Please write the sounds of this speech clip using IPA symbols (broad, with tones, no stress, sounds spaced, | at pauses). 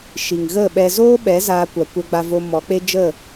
ʃ i˨ ŋ ɣ ə˦˨ ɓ ɛ˧ z oː˦ ɓ ɛ˨˦ z aː˧ kʷ a˨ kʷ ɛ˧ ɡ͡b a˧ v o˧ m ɔ˨˦ k͡p e˦ d͡ʒ ə˦˨